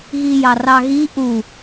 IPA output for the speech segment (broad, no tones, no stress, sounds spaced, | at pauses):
ɣ i j ɑ r ɑ ɣ i ʔ u